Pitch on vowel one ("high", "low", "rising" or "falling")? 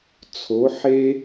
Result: rising